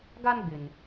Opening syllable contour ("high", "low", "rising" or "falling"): high